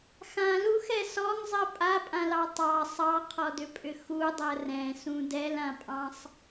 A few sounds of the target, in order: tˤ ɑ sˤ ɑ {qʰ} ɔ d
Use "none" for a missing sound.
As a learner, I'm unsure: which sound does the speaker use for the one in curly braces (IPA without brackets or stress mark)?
qʰ